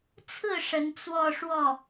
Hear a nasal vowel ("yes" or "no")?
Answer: no